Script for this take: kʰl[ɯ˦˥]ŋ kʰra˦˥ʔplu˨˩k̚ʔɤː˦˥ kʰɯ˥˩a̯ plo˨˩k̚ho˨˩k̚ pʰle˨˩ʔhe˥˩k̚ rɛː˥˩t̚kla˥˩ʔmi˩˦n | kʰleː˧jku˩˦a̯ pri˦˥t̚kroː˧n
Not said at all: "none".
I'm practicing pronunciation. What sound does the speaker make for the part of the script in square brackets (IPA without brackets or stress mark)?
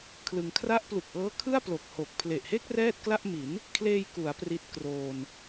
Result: ɯ˧